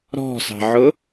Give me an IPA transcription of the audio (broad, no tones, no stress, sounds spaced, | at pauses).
ɾ ɔ̤ s ɑ̤ ʕ ʊ